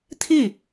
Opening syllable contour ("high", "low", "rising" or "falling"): falling